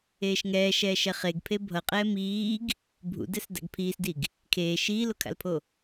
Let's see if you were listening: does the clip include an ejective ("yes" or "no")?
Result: yes